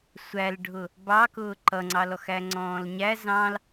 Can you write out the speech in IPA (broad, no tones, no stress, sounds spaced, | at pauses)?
sʷ æ l ɖʱ ʊ | b ɑ k ʊː ǃ ʌ ŋ͡ǀ ɑ l ɔ x æ ŋ͡ǀ ɔ̃ː l ɲ æ z ɑ̃ l